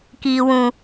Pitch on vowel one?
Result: low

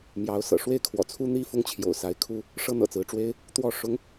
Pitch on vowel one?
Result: rising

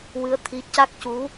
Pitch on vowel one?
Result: rising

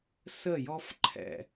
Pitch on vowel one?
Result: falling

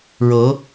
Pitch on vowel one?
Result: rising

